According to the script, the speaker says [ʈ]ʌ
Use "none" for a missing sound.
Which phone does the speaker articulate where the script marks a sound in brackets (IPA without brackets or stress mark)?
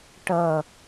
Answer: ʈ